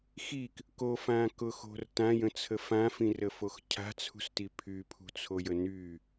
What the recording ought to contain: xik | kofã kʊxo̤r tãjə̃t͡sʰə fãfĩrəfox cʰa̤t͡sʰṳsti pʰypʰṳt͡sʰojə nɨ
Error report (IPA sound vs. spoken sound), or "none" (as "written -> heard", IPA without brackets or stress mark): ɨ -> y